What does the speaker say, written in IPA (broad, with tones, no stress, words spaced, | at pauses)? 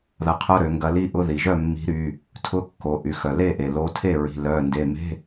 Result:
ðɐ˨˥qʰʊ˧˥˧ɾø˩˧ŋɡɐ˨˥ li˧˥˧ʔʊ˧˥˧ ði˩ʒœ˥˩mːi̤˨˥ɾy˩˧˩ | tʰʊ˧˥˧ kːo˩˧ʔy˩˧xœ˩ le˥˩ʔe˩lo˨˥tʰe˥˩ ɹi̤˩˧˩lœ˩˧˩nde˩˧˩me̤˧˥˧